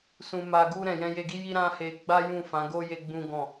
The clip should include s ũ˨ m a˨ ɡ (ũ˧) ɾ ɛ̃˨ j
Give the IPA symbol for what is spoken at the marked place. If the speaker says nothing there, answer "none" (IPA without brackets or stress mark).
u˧